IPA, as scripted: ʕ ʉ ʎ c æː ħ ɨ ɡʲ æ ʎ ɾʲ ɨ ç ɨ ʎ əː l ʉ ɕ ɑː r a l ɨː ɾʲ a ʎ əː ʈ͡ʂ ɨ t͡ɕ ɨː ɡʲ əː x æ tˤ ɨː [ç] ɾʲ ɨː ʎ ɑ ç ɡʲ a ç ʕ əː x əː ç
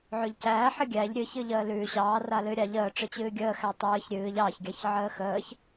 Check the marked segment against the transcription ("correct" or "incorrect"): correct